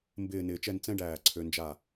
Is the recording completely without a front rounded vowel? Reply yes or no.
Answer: no